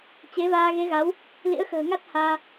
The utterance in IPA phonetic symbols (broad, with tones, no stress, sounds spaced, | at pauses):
t͡ɕ e˨˦ v aː˧ ɣ e˨˦ ɣ a˨˦ w | l ḭ˧˥ ə̯ x ə̤ː˨˩ ŋ a˦˥ t̚ h aː˧